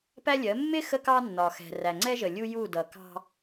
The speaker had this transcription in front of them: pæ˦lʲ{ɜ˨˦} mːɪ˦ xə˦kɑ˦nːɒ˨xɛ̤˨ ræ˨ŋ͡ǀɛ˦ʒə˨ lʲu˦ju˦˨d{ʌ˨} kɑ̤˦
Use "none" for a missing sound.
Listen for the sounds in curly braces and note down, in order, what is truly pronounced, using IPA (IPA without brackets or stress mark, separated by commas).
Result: ɜ˨˦, ʌ˨